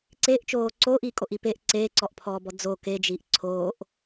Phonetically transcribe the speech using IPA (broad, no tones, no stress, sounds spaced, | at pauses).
ǀ eː ʔ t͡ʃ oː ǀ oː ʔ iː kʼ o ʔ i p e ʔ ǀ eː ǀ ɔ ʔ pʰ ɔː b ɔ d͡z o k e d͡ʒ iː ʔ ǀʰ oː ʔ